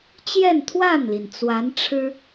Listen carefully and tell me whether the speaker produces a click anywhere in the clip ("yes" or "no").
no